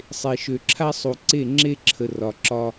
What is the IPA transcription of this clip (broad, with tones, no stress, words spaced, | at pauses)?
sˤe˨ʃø˨ǁʰa˦sˤu˨ ǀe˦˨ŋ͡ǁe˦ǁʰə˨ rɒ˨ǁɒ˦